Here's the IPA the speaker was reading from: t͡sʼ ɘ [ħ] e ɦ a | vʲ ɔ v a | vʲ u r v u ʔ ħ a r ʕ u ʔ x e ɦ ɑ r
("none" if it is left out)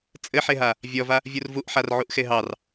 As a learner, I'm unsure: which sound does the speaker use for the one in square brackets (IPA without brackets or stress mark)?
ħ